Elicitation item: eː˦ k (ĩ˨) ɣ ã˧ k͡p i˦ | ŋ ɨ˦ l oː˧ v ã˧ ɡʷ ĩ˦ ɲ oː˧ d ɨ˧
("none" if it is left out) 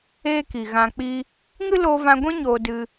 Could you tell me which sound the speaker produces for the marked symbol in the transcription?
i˨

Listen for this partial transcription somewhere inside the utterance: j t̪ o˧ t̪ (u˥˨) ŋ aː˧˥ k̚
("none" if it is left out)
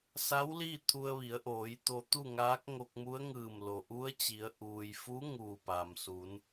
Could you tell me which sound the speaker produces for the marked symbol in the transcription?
u˥˨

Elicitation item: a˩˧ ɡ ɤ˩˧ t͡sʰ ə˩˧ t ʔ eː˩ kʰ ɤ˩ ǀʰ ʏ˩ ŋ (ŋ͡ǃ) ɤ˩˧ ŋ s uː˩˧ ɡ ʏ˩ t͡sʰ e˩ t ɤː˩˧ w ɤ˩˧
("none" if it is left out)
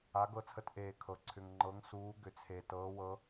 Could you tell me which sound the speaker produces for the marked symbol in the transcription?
ŋ͡ǃ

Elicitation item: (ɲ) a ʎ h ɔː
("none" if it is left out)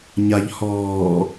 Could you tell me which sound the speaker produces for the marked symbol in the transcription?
ɲ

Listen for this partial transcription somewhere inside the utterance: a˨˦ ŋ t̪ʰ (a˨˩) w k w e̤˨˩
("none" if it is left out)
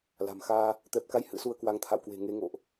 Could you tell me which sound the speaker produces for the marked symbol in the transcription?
a̰˧˨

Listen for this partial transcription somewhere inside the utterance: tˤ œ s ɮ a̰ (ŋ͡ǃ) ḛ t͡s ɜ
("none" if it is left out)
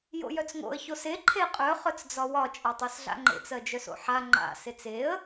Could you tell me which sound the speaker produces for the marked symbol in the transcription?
ŋ͡ǃ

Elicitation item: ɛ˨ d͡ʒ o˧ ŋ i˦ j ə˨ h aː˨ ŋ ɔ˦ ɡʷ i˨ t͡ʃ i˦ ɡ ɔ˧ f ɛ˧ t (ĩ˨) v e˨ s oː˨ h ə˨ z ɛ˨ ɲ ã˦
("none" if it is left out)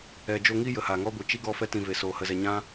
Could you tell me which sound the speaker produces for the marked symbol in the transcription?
ĩ˨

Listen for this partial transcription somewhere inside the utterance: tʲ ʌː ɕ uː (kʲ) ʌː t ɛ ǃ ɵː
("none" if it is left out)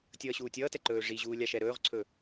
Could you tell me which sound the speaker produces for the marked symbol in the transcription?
tʲ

